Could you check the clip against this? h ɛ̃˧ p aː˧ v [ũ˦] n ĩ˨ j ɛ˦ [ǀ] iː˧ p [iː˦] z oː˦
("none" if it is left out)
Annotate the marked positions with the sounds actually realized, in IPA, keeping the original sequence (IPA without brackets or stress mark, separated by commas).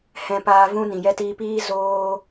ũ˦, t, iː˦